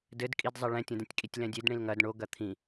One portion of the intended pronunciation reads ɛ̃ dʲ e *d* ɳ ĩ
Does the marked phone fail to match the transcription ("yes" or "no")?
no